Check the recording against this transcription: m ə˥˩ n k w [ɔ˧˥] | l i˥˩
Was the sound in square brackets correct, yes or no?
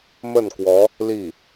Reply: yes